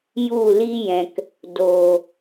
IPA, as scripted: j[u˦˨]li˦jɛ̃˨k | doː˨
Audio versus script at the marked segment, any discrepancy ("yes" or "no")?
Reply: no